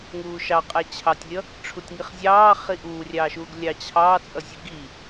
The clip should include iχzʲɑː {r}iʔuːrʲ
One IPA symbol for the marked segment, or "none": χ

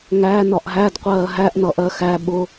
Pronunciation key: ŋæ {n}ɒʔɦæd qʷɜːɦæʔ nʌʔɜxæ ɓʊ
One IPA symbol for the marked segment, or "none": n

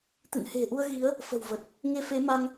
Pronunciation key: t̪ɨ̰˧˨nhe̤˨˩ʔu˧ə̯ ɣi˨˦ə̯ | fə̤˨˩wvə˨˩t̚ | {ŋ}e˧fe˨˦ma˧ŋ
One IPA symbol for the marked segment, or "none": ŋ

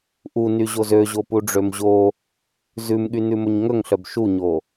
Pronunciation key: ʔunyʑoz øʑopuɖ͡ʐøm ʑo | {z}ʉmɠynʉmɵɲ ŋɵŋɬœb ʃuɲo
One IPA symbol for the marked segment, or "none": z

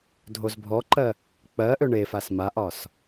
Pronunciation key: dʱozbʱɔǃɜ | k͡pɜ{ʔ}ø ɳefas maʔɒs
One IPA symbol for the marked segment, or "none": ʔ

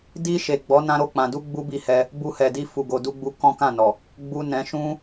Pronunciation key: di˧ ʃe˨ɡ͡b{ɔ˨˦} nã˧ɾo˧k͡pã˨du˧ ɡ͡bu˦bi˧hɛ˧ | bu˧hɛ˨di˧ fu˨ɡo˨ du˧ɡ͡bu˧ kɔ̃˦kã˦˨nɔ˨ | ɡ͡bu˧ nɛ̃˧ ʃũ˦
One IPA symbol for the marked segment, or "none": ɔ˨˦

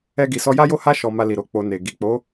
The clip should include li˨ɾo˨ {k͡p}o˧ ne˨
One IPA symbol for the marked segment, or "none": k͡p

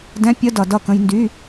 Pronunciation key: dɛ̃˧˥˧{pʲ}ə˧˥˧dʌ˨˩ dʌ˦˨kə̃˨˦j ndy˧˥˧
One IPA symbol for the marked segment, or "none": pʲ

